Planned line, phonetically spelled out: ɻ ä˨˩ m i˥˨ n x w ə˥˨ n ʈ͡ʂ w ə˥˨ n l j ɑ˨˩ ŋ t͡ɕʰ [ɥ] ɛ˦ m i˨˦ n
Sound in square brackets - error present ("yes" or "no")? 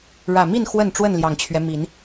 no